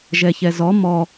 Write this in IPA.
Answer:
ʒɛçɛzɔ mɔ

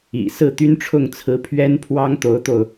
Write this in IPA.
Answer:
ḭ˨˩ sɹ̩˥˩t̪y˥nʈ͡ʂʰʊ˥˩ŋt͡sʰɹ̩˧˥ pʰɥɛ˥npʰwɑ˥ŋ t̪o˧˥ʊ̯t̪o˧ʊ̯

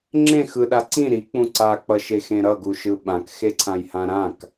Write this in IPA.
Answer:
ŋ͡ǁẽ xɯɗa ǀĩ ɾik͡pũ ǀak͡pʌʃexẽ ɾʌɡuʃɯ ɓãkxeǀʰãjhã ɾãk

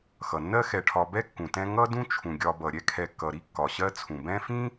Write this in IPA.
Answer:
xʌ˩nːɜ˦xɛ˨ʈʰɒ˨ bɛ˥kːũ˩tɛ̃˦ ŋʌ˦dũ˦t͡ʃʰũ˩ɡʲɒ˨ bʌ˩ɾʲɛ˥kʰɛ˨kːʌ˩ ɾi˥kːɒ˩ɕɜ˦t͡sʰũ˩ bɛ̃˦fĩ˥

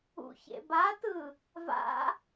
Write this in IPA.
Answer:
ṵçḛbatɯ | va̰

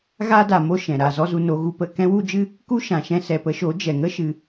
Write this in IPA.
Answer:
ɣa˦da˨mo˦ ʃɛ̃˨ ɾa˦˨zɔ˦zu˧no˨˦ ɣu˧pə˦˨ kɛ̃˦wu˦d͡ʒɨ˦ | ku˦ʃã˨ʃɛ̃˧ sɛ˨pə˧ʃo˨˦ d͡ʒɛ˨ŋə˦ ʃɨ˧

